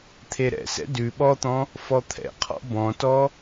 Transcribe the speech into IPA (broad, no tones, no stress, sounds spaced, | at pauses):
t̪ʰ e ɾ ɛ̰ s ɛ̰ d ʉ ɓ ɔ t̪ ɔ̃ | f ɔ t̪ʰ ɛ̰ qʰ ɔ̰ b ɔ̃ t ɔ